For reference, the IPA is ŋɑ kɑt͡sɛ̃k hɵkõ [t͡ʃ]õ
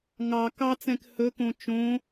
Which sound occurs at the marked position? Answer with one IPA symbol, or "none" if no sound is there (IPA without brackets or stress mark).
t͡ʃ